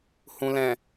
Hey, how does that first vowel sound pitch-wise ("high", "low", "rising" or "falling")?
low